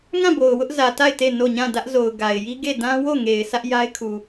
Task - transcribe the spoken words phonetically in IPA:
ŋã˦˨bo˨ʊ̯ wʊ˦ʔzä˨ ta˦˨ɪ̯ te˦˨no˦˨ ɲã˦˨dä˦ʔzo˨ʊ̯ ɡa˨ɪ̯ji˦ ɡe˦˨ dã˦ wo˦˨ŋe˨ɪ̯ sʰä˦ʔja˦ɪ̯kʰu˨

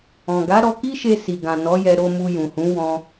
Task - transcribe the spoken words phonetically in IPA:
ɔ̃˨ ɡa˨˦ɾɔ˧ki˦ʃe˧ si˨ɡã˨ nɔ˨˦jɛ˧ ɾo˧mu˧jũ˨hũ˨˦ wɔ̃˧

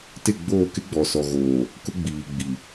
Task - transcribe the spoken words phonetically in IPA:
tɪ˦˨ɡ͡boː˦˨ kɪ˦ɡ͡bɔ˨sɔ˨ɣoː˨ | kʊ˦ɡ͡biː˨ ɡ͡bi˨

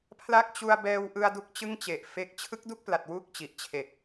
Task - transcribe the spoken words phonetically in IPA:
pʰla˦˥k̚t͡ɕu˧a̯bɛː˧wʔɯ˧a̯ du˦˥k̚t͡ɕɯ˥˩ŋt͡ɕe˨˩ʔfe˦˥k̚ t͡ɕʰɯ˦˥k̚du˥˩k̚pla˨˩t̚ wu˥˩k̚t͡ɕi˨˩ʔ t͡ɕʰe˨˩k̚

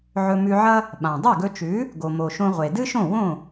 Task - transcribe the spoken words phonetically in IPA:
ʕɵ˧mʉ˧ʕɐ˥ | ɓã˩ dˤʉ˥˩ɡɵ˧t͡ʃʉ˩˥ | ɡo˩mo˩ ʃõ˧ʁʷe˩dɨ˥ʃõ˥˩ wõ˥˩

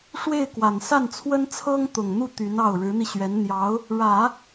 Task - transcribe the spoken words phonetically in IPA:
ʂwe˥˩ɪ̯kwa˨˩n sa˥˩nt͡sʰwə˥n t͡sʰɤ˥ŋt̪ʊ˨˩ŋn̪u˥˩ t̪y˧˥nɑ˥˩ʊ̯ ɻɻ̩˧˥n̪i˧ɕɥɛ˧˥n n̪jɑ˧˥ʊ̯ | ɻä˨˩˦

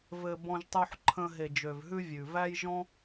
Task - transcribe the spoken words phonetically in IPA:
vɘ˨ bɔ̃˧ʒtˤu˧ħ ǃʰə̃˧ ɦe˨d͡ʒø˨vɦʉ˧ vʲʉ˨væ˦jʒɔ̃˦

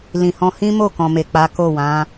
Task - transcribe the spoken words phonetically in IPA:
lĩ˨hɔ̃˧hĩ˦mo˦˨ kɔ̃˨me˨k͡pa˨˦ ko˦˨ wã˨˦

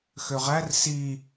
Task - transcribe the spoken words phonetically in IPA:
xøʁær si

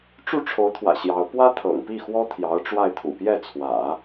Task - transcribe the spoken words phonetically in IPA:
ʈ͡ʂu˥˩ʈ͡ʂʰo˧˥ʊ̯t̪ʰwä̰˨˩ ɕjɑ˧˥ʊ̯ pwä˥t̪ʰɤ̰˨˩ŋpi˥˩xwɔ˥ t̪ʰjɑ˧˥ʊ̯ʈ͡ʂwa˥˩ɪ̯ t̪ʰṵ˨˩pjɛ˥˩t͡sʰwä̰˨˩˦

